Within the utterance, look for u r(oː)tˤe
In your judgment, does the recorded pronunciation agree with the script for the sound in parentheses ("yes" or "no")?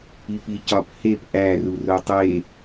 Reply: no